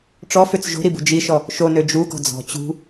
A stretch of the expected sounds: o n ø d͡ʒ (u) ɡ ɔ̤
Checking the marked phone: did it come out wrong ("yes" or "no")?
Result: no